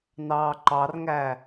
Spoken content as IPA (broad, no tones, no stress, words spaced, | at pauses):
nɑːǃɑrŋæ